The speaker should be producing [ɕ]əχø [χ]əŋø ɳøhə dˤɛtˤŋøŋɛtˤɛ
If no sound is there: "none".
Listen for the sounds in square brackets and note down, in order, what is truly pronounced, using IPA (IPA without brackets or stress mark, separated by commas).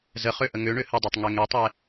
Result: z, ʔ